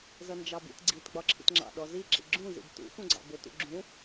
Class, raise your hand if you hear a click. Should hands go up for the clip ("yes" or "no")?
yes